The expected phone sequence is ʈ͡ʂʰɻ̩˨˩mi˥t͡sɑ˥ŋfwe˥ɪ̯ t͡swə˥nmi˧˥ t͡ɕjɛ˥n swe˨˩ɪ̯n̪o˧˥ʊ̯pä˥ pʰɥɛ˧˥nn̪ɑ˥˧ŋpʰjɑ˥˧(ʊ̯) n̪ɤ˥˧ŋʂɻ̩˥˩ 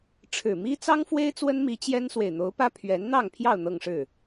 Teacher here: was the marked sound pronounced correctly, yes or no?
yes